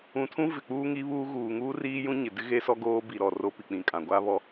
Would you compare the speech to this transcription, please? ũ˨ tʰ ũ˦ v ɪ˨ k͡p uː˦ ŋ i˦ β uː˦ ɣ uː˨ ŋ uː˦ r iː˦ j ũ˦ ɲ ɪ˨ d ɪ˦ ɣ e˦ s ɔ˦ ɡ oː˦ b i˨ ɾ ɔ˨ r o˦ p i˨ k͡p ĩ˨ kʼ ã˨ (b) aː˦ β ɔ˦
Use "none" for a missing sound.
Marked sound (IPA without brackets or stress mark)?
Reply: ɡʷ